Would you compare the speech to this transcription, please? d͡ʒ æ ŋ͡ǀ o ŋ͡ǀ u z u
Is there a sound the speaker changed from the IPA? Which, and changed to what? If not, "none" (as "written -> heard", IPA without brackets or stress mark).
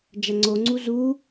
none